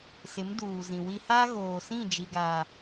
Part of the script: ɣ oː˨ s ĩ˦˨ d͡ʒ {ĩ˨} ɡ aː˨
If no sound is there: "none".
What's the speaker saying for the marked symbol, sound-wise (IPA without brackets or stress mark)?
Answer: i˨